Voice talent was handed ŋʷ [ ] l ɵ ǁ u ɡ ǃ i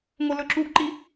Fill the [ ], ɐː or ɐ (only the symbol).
ɐ